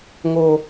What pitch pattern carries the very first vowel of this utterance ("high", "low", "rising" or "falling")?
high